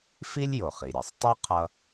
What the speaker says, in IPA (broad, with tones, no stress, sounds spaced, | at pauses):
f i˥ lʲ j o˩ χ i˩ ɾʲ ʌ˩ sˤ tˤ u˥ qʰ ʌ˧